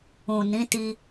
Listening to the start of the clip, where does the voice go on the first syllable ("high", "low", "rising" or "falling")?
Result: low